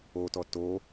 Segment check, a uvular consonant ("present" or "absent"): absent